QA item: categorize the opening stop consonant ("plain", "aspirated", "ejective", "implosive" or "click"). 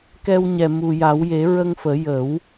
plain